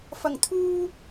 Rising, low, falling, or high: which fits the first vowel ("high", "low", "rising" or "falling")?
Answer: low